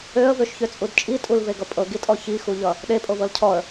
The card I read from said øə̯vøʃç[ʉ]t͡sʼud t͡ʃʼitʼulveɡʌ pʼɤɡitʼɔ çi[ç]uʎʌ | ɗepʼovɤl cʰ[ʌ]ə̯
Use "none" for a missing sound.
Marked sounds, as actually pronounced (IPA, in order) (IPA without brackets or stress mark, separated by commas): ø, x, ɔ